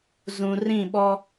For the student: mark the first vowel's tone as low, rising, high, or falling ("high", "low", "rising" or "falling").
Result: low